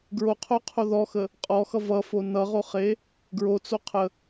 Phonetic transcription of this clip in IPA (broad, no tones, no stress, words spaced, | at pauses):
ɡɹoqʰoqʰo ðɔxə | qʼɔxʌ vʌfo nʌʁoχe | ɡɹot͡soqʰə